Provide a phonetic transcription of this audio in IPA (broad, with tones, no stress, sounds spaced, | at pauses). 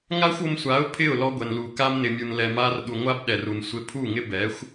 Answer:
ŋ a˦ xʷ o˧ m sʷ a˨˦ ʊ̯ pʰ ɪ˦˨ ʊ̯ l ɔ˧ ɡʷ ɛ˨ n l u˨ k a˧ m n ɪ˨ mʲ u˨ n l ɛ˨ m a˧ r ɗ u˨ ŋʷ a˦ b ɗ ɛ˨ r u˨ n sʷ ɪ˧ pʰ u˦˨ ŋ ɪ˦ b ɛ˨˦ xʷ